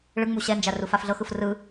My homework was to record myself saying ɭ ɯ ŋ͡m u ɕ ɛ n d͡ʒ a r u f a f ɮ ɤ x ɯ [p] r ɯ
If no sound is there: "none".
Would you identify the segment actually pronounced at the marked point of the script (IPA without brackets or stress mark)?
f